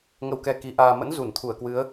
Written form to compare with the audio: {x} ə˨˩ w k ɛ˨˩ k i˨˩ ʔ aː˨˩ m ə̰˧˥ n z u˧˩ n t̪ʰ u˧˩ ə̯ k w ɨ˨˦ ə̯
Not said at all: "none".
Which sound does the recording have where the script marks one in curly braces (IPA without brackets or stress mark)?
ŋ